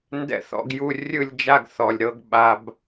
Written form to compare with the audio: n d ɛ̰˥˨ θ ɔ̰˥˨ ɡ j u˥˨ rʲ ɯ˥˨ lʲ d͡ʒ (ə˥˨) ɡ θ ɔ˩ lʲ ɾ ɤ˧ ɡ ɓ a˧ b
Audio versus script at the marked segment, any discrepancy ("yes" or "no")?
yes